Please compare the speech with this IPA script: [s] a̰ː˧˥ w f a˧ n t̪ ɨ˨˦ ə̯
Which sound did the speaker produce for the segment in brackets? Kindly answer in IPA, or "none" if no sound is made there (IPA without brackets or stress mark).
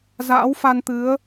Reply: z